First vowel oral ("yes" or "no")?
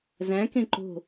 no